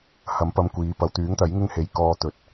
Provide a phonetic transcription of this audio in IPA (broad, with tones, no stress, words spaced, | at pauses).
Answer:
hɐ˨˥mpɐ˧mkʷiː˨˧ pɐ˨wt̪yː˨˥ŋt̪ɐ˨˥j ŋɪ˥ŋhe˨˥j kɔː˧t̪ɵ˨t̚